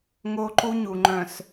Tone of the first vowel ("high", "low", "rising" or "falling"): high